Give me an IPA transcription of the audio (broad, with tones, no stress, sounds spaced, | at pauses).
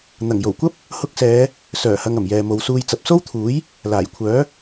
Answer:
n̪ ɐ˨˩ ŋ j o˨˩ w kʷ ɐ˥ p̚ | h ʊ˧ k̚ s ɛː˨˧ | s œː˨˩ h ɐ˨ ŋ ɐ˨˩ m j ɛː˨ m o˨˧ w s uː˧ j t͡s ɐ˨ p̚ s o˥ w t̪ʰ uː˨˥ j | l aː˨˩ j kʷʰ œː˨˥